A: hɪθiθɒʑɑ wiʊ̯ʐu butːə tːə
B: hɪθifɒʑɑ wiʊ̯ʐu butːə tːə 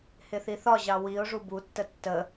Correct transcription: A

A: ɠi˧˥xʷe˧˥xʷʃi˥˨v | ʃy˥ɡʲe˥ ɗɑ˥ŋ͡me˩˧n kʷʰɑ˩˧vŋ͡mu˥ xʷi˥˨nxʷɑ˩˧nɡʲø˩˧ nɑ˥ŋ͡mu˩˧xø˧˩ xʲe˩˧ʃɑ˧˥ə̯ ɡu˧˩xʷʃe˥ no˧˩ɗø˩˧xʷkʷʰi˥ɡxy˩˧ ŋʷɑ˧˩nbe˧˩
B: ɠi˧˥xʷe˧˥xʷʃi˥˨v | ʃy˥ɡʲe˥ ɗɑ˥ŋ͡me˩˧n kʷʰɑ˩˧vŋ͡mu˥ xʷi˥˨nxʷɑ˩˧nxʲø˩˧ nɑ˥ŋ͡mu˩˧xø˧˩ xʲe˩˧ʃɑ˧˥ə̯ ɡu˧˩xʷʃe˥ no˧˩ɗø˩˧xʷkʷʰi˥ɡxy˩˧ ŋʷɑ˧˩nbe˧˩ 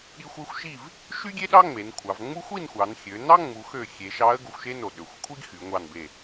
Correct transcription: B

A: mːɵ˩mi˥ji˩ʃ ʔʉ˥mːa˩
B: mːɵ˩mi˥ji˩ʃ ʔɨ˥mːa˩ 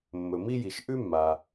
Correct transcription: A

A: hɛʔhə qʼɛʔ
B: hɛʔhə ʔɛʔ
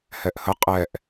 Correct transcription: A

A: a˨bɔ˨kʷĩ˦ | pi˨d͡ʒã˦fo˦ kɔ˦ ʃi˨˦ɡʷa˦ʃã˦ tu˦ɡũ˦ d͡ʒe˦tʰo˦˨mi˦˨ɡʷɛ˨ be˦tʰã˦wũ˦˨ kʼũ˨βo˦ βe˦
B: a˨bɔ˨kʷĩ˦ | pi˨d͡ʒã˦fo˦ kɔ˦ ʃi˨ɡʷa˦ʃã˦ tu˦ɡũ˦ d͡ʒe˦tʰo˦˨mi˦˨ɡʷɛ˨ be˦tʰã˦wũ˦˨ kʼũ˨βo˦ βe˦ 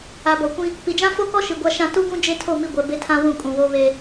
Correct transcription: B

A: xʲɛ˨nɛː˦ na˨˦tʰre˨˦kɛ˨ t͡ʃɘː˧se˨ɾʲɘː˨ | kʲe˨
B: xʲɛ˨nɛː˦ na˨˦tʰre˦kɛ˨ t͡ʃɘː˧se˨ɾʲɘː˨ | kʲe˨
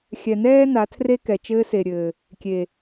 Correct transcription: B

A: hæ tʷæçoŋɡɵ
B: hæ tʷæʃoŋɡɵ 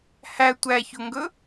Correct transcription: A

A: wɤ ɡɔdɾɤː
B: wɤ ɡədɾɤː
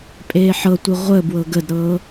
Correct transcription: B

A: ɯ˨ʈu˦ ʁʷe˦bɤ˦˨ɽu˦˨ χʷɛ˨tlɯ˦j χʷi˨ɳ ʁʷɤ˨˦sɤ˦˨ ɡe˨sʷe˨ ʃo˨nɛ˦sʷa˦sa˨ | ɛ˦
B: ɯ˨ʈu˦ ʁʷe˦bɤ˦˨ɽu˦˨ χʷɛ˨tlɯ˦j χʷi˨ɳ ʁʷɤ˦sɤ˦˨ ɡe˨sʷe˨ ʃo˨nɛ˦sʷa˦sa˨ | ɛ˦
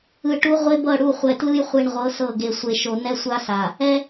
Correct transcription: A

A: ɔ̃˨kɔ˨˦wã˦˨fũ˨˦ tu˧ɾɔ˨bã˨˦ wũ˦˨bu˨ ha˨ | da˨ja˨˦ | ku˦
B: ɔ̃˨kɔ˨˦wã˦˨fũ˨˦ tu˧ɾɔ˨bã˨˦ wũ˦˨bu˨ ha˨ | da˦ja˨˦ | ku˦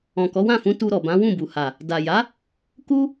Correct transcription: A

